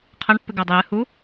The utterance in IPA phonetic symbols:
qʰ ɐ ɳ pː ɨ ɡ ɐ dˤ ɵ j ɨ h u

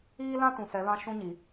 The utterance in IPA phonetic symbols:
iː˦ l ã˦ t ũ˨ s ɛ˨˦ β ã˦ ʃ ũ˦ ɲ i˨

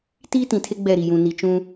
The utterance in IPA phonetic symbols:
t iː˦ t ĩ˨ tʰ e˦ ɡ͡b ɛ˦˨ ɾ i˨ j ũ˨ n i˨ t͡ʃ ũ˦

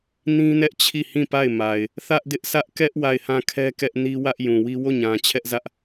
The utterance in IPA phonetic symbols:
n ĩ˦ n ɛ˦ ʔ t͡ɕʰ i˦˨ h ĩ˦˨ p a˦˨ ɪ̯ m a˨ ɪ̯ | θ ä˦ ʔ d ɪ˦ ʔ s ä˦ ʔ k ɛ˦ ʔ w a˦˨ ɪ̯ h ã˦˨ kʰ ɛ˦ k ɛ˦ ʔ n i˦ w ä˦ ʔ j ũ˨ w i˦ w o˦˨ ɲ ã˨ t͡ɕʰ ɛ˦ ʔ z ä˦ ʔ

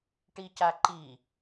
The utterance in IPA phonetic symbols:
ʈ i c a ǃ i

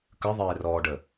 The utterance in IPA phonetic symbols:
k ə ðˤ eː r ɔː ɖ ə

